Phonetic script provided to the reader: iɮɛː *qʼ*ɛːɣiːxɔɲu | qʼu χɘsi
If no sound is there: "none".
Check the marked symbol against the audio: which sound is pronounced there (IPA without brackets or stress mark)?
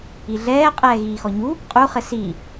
qʼ